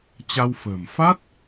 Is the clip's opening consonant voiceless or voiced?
voiceless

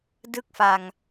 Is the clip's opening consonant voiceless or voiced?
voiced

